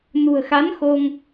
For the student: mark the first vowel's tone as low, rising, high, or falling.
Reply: low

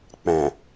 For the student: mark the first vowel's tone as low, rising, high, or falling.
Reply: low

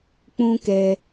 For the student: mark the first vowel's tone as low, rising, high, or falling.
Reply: high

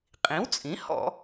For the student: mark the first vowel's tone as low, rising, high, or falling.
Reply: rising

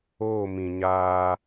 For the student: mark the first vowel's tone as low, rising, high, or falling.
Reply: falling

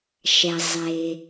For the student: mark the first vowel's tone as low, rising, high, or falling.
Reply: low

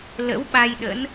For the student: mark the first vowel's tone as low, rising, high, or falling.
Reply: rising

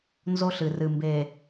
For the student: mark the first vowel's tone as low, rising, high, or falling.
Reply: high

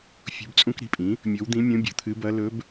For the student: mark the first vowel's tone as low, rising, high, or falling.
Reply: rising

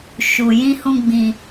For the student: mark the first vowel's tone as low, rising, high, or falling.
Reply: low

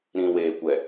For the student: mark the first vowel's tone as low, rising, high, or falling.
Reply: low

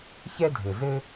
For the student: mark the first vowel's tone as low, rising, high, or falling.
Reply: high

